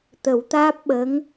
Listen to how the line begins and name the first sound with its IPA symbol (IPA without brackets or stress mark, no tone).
t̪